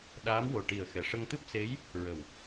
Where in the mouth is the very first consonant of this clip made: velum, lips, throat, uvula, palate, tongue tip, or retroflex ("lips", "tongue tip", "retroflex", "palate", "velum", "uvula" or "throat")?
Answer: tongue tip